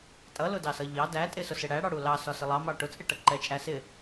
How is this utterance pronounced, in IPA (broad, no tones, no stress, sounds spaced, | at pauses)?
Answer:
tʼ ʌ l ʊ d ɑ s ʌ ʎ ɑ d æ tʼ ɪ s ʊ s ɪ ɽ æ ɽ ɑ ɽ u l ɑ s ɒ s ɪ lˠ ɑ m ɑ ʈ ʊ t͡sʼ ɪ ʈ ʌ ǃ ɛ t͡ʃʼ æ s ɪ